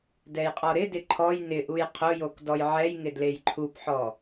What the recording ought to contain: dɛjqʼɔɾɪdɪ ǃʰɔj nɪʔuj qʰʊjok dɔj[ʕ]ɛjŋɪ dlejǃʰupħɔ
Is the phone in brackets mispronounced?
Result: no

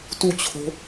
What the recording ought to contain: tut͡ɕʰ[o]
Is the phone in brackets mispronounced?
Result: yes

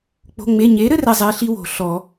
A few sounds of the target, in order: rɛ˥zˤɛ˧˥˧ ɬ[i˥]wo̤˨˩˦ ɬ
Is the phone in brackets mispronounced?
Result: no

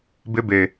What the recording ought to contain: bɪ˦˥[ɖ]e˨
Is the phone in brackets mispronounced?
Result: yes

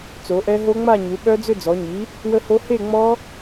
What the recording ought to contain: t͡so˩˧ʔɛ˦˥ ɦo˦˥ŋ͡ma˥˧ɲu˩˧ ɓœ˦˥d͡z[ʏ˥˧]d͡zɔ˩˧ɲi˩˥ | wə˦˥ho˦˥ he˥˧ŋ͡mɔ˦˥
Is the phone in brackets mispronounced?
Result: no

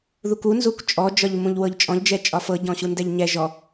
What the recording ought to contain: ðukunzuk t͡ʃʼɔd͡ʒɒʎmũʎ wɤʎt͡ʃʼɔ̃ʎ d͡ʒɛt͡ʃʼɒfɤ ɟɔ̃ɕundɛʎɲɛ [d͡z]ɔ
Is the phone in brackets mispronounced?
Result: yes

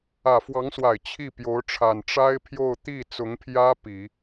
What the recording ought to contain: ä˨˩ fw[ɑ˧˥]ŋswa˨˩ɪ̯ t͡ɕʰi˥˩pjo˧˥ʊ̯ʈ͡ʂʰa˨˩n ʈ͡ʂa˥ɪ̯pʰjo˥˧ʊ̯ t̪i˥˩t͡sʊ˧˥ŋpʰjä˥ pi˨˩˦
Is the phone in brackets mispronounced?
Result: no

